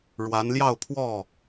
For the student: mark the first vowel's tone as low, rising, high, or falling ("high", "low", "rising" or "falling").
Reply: rising